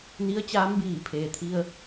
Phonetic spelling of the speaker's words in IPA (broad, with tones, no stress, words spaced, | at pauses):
ni˧˥ə̯t͡ɕaː˧˥mbiː˧˩pʰeː˩ t̪ʰi˧ə̯